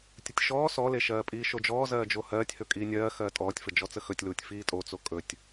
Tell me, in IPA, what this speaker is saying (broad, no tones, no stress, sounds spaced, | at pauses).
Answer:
tʲ ə tʲ ʃ ɔː s ɔ l e ʃ ɜː pʼ iː ʃ o d͡ʒ ɔː z ɜː d͡ʒ o h ɜː tʲ h ɵ kʼ iː nʲ ɜː x ɜː tʼ ɔː tʲ f ə d͡ʒ ɔ t͡s ə x ɵ tʲ l uː tʲ f iː tʼ o t͡s o kʼ ɵ tʲ